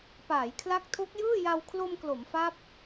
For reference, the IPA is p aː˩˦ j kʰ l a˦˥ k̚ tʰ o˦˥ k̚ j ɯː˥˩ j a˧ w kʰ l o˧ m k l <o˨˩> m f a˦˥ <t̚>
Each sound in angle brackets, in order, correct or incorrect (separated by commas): incorrect, incorrect